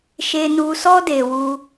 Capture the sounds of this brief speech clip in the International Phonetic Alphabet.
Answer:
ʃ e˧ n u˧ s ɔ˦ d e˧ w u˧

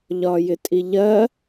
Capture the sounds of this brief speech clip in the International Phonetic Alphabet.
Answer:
ʎ ɒ j ɪ tʼ i ʎ ɜ

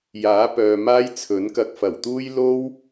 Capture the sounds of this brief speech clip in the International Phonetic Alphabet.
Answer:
j aː˨˥ p œː˨ m aː˥ j t͡sʰ ɵ˨˥ n k ɐ˧ k̚ f ɐ˨˩ w t̪ uː˥ j l o˥ w

